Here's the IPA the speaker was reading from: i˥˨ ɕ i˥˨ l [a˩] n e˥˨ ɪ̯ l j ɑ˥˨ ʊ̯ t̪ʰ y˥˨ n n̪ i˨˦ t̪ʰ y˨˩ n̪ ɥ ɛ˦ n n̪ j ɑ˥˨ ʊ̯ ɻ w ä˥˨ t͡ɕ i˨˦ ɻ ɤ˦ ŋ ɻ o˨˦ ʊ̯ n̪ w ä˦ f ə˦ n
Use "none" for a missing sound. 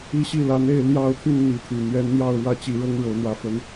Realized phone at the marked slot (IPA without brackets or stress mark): a˨˦